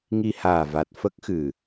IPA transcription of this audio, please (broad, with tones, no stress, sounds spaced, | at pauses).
ŋ i˧ h aː˨˩ v a˨˩ t̚ f ə˦˥ k̚ x ɨ˨˩